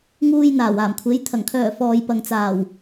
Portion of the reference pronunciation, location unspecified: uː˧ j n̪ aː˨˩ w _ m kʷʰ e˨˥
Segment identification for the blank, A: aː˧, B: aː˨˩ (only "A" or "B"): B